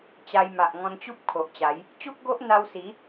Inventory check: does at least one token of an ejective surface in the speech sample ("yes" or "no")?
no